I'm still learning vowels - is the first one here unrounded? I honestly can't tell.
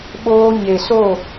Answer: no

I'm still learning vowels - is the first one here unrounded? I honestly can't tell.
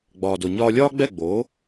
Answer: no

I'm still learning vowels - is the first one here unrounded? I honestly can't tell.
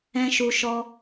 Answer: yes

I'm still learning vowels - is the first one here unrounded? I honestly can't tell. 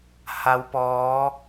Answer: yes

